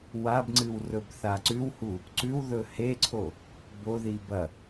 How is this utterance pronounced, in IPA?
wabŋ͡ǀɨw rɵbθaǀʉwhu | ǀʉwðɵ heǀʰo | boðib ɐ

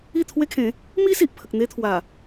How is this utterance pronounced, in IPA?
i˥˧t̪ʰwe˦kʰẽ˨˦ | mi˦ si˨ʔpʰə˨k̚n̪e˦t̪ʰwa˨˩

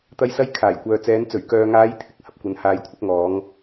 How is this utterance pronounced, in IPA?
t̪ɐ˥jsɐ˥j kʰaː˨˩jkʷœː˨t͡sɛː˨˧n t͡sɵ˨˩ɥkœː˨ŋaː˨˧j t̪ʰɪ˨k̚ hɐ˧p̚kʷɐ˨˧n haː˧jkʷʰɪ˥k̚ŋɔː˨˥ŋ

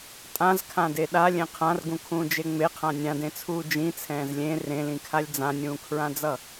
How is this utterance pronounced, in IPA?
tʼãzkʰãde ɗalʲẽ qʰãrɡũkʰũːd͡ʒe ŋ͡meqʰã nʲãdẽt͡sʰuː d͡ʒĩt͡sʰɛ̃ːz lʲẽ rẽlĩkʰalʲ d͡zãnʲũːkʰɹãd͡zʌ

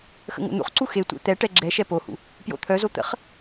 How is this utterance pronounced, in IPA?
xə̰ŋo̰n̪ṵχǀu xetʷḛ t̪ɛʈɛ ɡ͡ǁɛʃɛ pohṵ | pjo̰t̪ʰœzo t̪ə̰χ

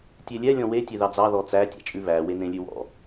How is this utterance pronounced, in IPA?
tʲelʲɛ lʲɔ̃we tʲeðɑd͡zɑ ðɔt͡sæ tʲɑ̰t͡ʃʼʉβæ wenẽlʲʉwɔ̰

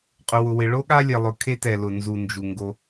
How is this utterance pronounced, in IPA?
qʼʊ˨wʊ˨wɪ˨ ɭo˦ɠa˦ lʲɛ˨lˠʊ˨ kʰe˦tɛ˨lʊ˨nzu˨ nd͡ʒu˨ŋɡo˦

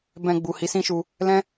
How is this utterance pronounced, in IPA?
bɛ̃˧ɡ͡bu˨ hi˨˦sĩ˦ʃu˧ | lɛ̃˦

